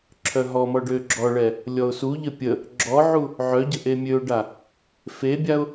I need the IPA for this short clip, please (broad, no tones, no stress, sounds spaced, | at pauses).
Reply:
ǁʰ œ ɦ ɔ m ɔ ɖ ø ɡ͡ǁ ɔ ɭ ɛ | lʲ ɔ ʊ̯ s u ʎ ə pʲ ə | ɡ͡ǁ ɔ ʕ u | ʕ œ ɟ ə ʔ e mʲ ø ʊ̯ ɖ a | f e bʲ a ʊ̯